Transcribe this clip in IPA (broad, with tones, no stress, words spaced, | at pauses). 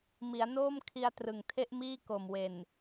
mi˩˦a̯noː˥˩mkʰi˧a̯ trɯ˨˩ŋtʰe˥˩ʔmiː˥˩ ko˨˩mwe˨˩n